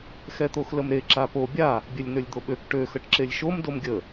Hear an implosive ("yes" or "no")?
yes